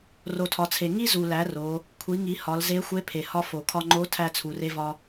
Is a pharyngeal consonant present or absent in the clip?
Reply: absent